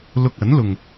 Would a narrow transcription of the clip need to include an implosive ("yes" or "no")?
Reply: no